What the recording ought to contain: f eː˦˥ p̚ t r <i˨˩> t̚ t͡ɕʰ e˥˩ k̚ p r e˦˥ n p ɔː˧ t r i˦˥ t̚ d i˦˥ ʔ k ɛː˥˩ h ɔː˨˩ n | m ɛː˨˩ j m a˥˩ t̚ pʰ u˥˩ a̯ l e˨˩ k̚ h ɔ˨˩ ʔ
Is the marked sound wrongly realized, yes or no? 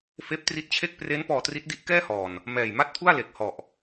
yes